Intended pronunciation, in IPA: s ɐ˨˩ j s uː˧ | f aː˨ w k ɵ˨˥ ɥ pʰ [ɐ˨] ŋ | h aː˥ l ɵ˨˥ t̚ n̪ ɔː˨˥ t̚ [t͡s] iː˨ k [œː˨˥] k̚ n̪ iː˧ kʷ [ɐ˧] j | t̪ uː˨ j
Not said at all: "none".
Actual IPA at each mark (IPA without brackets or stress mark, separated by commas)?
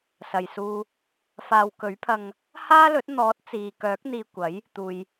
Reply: ɐ˧, t͡s, œː˨˥, ɐ˨˥